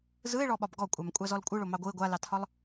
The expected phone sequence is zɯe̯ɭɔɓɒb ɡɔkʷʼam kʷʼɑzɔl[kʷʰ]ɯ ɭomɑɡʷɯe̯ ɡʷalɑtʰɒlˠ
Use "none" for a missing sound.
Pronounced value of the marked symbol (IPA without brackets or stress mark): kʷʼ